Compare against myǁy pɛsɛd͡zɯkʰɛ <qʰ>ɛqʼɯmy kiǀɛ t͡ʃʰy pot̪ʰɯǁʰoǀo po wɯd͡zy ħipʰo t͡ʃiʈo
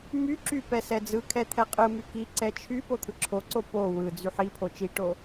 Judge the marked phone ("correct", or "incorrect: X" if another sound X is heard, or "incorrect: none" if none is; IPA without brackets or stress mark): incorrect: t̪ʰ